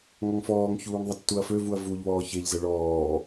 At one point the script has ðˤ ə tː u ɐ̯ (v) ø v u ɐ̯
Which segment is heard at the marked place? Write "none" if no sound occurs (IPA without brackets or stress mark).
f